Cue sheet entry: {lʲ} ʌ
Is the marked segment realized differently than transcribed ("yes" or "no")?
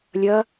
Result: no